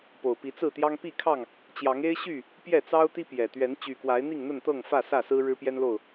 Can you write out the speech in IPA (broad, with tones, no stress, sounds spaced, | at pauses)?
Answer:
p o˨˩ ʊ̯ p i˨˦ t͡s ɹ̩˥˨ t̪ j ɑ˦ ŋ p i˥˨ kʰ ɑ˥˨ ŋ | t͡ɕ j ɑ˨˦ ŋ e˦ ɪ̯ ɕ y˥˨ | p j ɛ˥˨ t͡s ɑ˦ ʊ̯ t̪ i˦ p j ɛ˨˩ t̪ ɥ ɛ˨˦ n t͡ɕ y˨˩ k w a˨˦ ɪ̯ n̪ i˥˨ ŋ n̪ ə˥˨ n t̪ ɤ˥˨ ŋ f ä˥˨ s ä˥˨ s ɹ̩˦ ɻ ɻ̩˦ p j ɛ˦ n l o˥˨ ʊ̯